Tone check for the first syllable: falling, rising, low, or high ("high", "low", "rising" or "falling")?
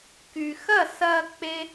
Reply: low